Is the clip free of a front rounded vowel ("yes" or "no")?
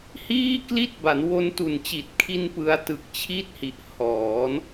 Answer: yes